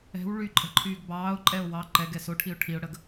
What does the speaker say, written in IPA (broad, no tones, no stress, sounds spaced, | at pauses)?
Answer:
ɛ̤ w ɭ y ǃʼ ɛ̤ ǃʰ yː ɡ b ɑː ʊ̯ ǃʼ ɛ ʊ̯ w ɑ ǃ ɛ ɡ ɛ s o ʈʰ i ʊ̯ ʈʰ i ʊ̯ ɽ ə ɡ